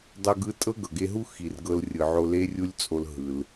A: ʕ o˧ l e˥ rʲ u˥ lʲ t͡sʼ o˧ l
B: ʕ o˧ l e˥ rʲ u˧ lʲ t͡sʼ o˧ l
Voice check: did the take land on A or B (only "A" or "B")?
A